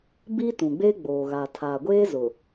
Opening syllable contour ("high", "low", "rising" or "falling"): high